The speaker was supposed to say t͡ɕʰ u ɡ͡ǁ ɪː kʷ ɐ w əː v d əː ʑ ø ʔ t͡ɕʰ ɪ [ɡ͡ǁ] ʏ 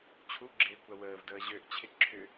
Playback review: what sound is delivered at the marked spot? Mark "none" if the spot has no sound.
ǁʰ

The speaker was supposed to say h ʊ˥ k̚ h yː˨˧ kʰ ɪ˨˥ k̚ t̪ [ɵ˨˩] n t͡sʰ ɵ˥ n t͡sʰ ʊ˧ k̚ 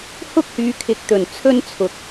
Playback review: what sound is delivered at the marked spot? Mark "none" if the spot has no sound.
ɵ˨˩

